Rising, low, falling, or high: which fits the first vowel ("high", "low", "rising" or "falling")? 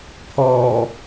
low